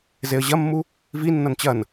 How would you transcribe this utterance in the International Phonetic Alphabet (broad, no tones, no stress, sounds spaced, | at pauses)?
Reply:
z e ə̯ ʑ ɐ mː u | v i nː ɐ n t͡ɕ ɐ n